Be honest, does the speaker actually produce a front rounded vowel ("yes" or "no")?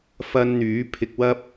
yes